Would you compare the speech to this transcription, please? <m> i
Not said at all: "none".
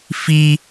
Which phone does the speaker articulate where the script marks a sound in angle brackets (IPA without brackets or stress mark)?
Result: f